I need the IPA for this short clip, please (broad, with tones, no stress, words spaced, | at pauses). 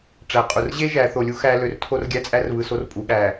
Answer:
ʈ͡ʂæ˨qʼu˨r ʑe˦ ʒæ˨˦ θo˨lʲu˦ xæ˦ lø˨rtʰo˦rɡʲæ˦t͡sʼæ˦r βɯ˨so˦rpʼu˨ ɠæ˨